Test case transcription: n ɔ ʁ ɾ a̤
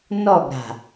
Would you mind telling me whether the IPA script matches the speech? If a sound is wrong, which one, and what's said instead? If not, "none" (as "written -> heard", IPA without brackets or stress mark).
ʁ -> ɡ